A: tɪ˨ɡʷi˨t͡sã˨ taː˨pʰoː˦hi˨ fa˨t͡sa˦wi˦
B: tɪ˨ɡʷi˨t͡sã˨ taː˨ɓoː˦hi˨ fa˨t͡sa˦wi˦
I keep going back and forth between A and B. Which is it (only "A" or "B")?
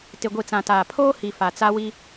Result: A